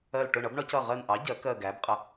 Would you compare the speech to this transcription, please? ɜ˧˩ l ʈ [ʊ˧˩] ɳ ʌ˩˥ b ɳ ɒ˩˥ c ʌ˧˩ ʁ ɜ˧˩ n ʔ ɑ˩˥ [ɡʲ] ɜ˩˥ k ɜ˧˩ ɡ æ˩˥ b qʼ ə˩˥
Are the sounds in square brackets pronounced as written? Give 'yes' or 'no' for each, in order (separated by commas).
yes, no